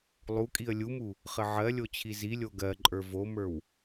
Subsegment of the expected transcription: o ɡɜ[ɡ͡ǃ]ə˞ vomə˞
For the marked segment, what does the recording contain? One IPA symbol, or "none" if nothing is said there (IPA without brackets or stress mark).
ǃʼ